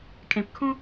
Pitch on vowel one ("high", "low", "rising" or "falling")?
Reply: low